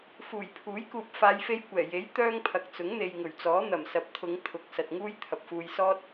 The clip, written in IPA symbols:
fuː˨˩jpʰuː˨˥jkuː˨p̚ faː˨˧jfe˧jkʷɛː˨˩je˨˥j t̪œː˥ŋpʰɐ˨˥k̚t͡sʊ˨˥ŋ n̪e˨jŋɵ˨˩ɥt͡sɔː˨˥ n̪ɐ˨˩msɐ˨˥p̚t̪ʰʊ˨˧ŋ t̪ʰʊ˨˥k̚sɐ˨t̚ŋuː˥j t̪ʰɐ˨p̚fuː˧j sɔː˥t̚

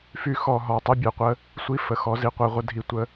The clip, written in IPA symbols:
fy˦xɔ˧ɦɔ˧ tˤi˦bʲɛ˧qʷə˦ | sʷi˧fə˨ xɔ˧ zi˧qʷɛ˧ʁʷə˦dʱi˦˨ tʷə˦

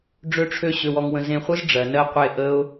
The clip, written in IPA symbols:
ɖ͡ʐø˦ʈ͡ʂʰø˦ ɕø˧wɔ˧ŋwə̃˧ zẽ˧χʷɯ˦z ɖ͡ʐɜ˨nɜ˦qʷe˦˨ ʔə˦ʊ̯

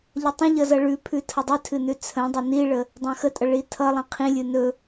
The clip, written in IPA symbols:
ʎʌtˤə̃ʎʌ zʌɭʉpʰʉ tʰʌdˤʉtʰɨ nʉt͡sʰə̃dˤə niɭə | dˤãxətʼʌ ɭitʰʌlˠĩ qʰĩlʲɨ nɵ

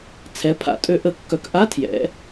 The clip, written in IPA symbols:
t͡sʰɛ˨˦pʰa̰˨˩˦ tʼø˨˦ʔə˨˩˦kːœ˨˦k ʔa˧˥˧tʰjɛ̰˨˦

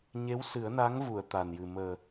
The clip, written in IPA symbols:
ɲe˧˥w sɨ˨˩˦ə̯na˧˥ŋvu˨˩˨ə̯ t̪a˨˩njɨ˨˩ məː˨˩

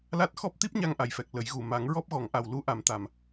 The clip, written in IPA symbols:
la˦˥t̚ xɔ˦˥p̚t̪i˦˥p̚ɲa˧ŋ ʔa˨˩jfɛ˨˩k̚ lə˨˩˦jɣu˨˩ ma˨˩˦ŋɹɔ˦˥p̚ɣɔ˨˩˦ŋʔa˨˩w lu˧˥ʔa˨˩mt̪a˨˩m

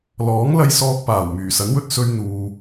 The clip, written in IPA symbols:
lɔː˨˥ŋlɐ˧j sɔː˧k̚paː˨˩w myː˨˩sɐ˨˥nwɵ˧t̚ sɵ˧ɥn̪uː˨

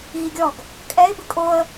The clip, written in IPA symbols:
ɣiɡʲɔɡ | kʼɛɪ̯ bɨkʼoə̯

